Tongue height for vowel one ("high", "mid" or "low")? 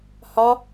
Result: low